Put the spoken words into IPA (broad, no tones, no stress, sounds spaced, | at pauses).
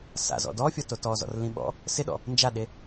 s a̰ z ɔ̰ d ɔ fʲ ɔ t o t ɔ z ɔ̰ r l ĩ ɓ ɔ̰ | s ɪ ɗ ɔ̰ | n d͡ʒ a ɗ e